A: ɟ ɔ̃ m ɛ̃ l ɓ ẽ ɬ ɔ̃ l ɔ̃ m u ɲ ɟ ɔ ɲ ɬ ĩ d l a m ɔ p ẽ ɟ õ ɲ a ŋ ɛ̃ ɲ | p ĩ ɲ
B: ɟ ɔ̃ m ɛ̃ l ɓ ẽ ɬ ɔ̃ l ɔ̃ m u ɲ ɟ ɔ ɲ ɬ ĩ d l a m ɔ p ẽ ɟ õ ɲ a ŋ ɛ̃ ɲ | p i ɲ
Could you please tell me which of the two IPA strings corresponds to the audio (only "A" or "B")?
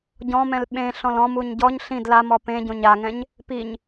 B